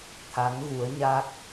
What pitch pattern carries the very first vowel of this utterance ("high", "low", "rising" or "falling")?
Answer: rising